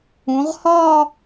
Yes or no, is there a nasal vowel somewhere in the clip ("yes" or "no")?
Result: yes